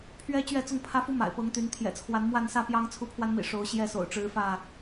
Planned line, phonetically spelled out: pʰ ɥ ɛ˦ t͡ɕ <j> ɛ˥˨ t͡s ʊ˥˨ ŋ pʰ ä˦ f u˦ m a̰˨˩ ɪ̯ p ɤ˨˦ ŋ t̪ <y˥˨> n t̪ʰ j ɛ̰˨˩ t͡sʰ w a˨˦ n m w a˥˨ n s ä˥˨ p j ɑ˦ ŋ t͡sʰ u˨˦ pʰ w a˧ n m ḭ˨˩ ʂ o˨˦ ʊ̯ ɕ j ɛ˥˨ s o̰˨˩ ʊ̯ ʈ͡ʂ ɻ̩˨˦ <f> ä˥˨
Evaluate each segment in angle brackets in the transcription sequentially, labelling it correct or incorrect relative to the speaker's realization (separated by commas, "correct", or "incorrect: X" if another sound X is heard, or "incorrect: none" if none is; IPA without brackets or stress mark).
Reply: incorrect: ɥ, incorrect: y˨˦, correct